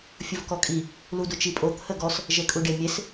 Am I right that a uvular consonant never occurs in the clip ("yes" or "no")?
yes